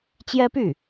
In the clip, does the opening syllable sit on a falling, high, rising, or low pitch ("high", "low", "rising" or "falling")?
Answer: high